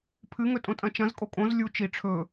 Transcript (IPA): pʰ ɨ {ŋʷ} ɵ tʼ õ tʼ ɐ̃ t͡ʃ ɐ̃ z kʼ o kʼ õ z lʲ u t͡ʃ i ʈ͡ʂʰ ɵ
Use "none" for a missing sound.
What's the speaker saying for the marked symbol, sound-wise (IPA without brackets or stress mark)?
ŋ